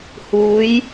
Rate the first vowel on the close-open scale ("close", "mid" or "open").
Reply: close